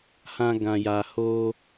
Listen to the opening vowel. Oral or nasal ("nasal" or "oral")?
nasal